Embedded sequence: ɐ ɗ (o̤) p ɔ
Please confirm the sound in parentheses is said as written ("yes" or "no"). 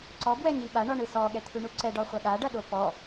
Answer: no